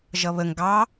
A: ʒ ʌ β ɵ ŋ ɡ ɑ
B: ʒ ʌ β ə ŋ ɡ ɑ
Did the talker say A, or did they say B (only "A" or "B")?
B